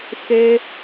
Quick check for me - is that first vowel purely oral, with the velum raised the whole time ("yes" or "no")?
yes